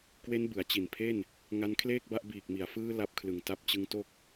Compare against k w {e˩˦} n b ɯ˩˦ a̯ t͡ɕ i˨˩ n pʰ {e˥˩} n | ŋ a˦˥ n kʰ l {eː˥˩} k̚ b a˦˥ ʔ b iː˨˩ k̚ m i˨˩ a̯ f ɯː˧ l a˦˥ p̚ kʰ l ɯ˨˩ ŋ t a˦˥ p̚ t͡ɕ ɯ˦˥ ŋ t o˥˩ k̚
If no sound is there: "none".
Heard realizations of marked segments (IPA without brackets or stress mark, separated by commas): e˦˥, e˥˩, eː˥˩